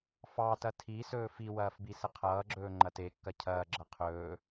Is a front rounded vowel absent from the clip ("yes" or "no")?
yes